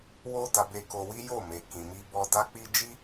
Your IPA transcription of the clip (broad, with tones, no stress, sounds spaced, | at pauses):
w o˦ d a˧ b e˧ k o˧ w i˦ j o˦˨ m e˨ k ĩ˨ m i˧ b ɔ˧ d a˦ k͡p i˦ d͡ʒ i˦